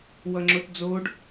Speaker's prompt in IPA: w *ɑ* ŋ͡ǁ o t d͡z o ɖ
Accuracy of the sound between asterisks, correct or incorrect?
incorrect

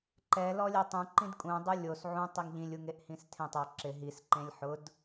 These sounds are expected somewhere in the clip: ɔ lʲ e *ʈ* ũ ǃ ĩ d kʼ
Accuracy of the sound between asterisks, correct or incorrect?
incorrect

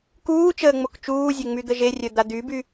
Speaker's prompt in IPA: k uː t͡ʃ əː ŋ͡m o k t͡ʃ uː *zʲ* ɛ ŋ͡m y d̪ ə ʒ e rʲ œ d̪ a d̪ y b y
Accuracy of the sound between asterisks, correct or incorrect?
correct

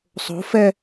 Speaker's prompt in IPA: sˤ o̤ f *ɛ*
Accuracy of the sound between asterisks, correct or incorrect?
correct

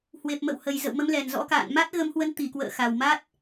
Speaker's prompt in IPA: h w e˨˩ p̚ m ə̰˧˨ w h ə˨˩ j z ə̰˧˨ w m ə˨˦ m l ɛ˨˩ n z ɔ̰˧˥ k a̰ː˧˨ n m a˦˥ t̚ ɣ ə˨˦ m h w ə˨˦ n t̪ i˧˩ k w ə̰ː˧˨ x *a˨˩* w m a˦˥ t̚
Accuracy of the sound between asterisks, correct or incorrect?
correct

